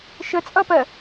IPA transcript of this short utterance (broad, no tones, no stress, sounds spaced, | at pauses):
ʃ ə t͡sʼ ʌ p ɜ